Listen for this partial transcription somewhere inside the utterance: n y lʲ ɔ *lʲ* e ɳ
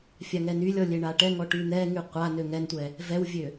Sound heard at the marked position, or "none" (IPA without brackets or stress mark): lʲ